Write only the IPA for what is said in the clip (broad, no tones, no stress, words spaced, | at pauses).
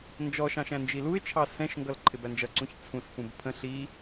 nd͡ʒɔʃɑ̃ʃ æ̃nd͡ʒiluɪ̯t͡ʃʰɑ sɛ̃ʃŋɡʌl ǃʰɪbænd͡ʒʌǀũç t͡sʰũsfũb pʰə̃ ɬi